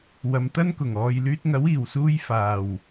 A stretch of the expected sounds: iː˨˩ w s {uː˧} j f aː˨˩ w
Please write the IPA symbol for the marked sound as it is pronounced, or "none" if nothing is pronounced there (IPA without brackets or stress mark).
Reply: uː˧